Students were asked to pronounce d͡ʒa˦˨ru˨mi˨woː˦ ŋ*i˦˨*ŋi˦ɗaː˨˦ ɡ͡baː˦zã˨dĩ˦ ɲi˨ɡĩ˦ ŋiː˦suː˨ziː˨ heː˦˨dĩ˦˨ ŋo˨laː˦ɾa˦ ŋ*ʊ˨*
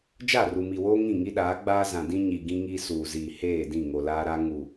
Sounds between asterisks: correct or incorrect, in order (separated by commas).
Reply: incorrect, incorrect